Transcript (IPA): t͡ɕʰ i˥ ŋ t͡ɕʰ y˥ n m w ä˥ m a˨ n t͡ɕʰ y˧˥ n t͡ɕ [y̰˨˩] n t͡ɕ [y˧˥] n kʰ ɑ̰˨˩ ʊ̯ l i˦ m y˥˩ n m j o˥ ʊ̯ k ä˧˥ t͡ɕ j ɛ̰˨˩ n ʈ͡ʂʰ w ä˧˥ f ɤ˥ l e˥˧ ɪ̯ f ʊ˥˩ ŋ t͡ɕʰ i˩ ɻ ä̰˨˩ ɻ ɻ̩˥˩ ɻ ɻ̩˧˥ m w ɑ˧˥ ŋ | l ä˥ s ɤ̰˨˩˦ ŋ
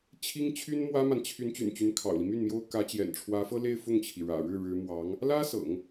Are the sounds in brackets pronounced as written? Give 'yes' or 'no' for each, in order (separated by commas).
yes, yes